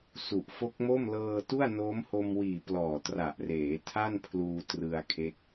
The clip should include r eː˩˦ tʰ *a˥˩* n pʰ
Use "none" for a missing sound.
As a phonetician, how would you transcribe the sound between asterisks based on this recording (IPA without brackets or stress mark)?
a˥˩